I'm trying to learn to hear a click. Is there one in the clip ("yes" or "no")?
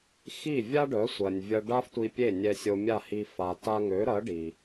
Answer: no